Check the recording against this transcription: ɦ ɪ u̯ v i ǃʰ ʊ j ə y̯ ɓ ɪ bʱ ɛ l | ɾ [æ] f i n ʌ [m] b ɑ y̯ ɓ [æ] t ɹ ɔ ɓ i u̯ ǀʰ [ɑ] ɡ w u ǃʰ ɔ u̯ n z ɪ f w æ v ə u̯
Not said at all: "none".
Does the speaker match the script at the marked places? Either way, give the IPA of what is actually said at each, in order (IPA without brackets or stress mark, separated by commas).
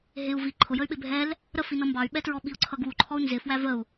ə, m, ɛ, ʌ